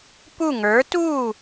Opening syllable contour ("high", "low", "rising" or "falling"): falling